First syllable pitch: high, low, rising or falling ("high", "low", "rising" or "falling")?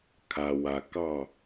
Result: low